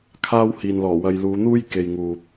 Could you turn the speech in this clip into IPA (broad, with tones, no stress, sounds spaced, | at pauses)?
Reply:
kʰ aː˥ w h iː˨ n l ɔː˨˩ w ɐ˧ j l uː˨˧ n̪ uː˥ j k e˨ j ŋ uː˨ p̚